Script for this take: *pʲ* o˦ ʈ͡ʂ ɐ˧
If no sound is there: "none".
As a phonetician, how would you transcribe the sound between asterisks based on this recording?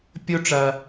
pʲ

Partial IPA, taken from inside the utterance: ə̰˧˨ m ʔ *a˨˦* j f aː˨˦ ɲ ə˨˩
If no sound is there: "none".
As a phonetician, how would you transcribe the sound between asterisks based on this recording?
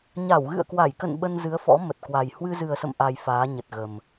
a˧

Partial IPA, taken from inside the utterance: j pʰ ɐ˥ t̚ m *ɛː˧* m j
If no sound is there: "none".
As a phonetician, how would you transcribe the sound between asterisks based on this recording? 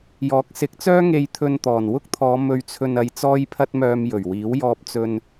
œː˧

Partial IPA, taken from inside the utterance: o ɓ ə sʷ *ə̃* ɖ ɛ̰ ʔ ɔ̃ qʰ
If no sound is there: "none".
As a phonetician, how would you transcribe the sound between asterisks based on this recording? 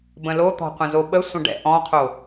ə̃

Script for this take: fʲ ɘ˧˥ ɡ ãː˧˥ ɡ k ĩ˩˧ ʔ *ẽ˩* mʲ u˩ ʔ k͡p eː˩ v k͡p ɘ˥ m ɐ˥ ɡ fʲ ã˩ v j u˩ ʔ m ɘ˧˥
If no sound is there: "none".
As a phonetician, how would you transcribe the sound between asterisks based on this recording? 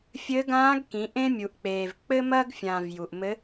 ẽ˥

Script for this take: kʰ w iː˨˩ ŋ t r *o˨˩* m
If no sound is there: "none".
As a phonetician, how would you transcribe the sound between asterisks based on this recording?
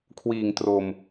o˨˩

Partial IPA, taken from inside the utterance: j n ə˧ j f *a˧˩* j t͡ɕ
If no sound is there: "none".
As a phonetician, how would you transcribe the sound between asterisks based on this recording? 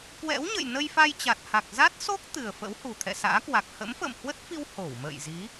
a˧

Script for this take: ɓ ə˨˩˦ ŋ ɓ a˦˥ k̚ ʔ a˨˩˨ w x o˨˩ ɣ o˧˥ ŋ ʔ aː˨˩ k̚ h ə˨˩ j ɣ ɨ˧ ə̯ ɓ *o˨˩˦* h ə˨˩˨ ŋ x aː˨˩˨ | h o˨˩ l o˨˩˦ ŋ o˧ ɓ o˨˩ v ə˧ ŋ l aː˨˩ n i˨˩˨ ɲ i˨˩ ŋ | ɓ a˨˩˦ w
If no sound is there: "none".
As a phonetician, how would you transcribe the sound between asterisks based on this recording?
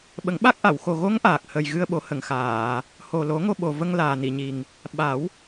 o˨˩˦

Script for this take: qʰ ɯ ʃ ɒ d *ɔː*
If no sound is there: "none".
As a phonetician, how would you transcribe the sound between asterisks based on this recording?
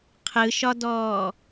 ɔː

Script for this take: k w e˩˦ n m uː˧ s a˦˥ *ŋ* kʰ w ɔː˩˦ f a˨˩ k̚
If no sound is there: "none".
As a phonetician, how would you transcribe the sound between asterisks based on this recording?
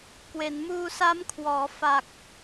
m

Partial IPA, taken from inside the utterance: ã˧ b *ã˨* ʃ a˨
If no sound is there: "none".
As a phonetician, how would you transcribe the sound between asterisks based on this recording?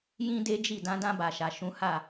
a˨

